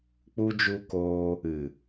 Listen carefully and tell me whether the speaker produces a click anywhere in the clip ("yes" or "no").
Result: no